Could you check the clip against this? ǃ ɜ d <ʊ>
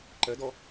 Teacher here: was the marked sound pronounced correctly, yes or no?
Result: no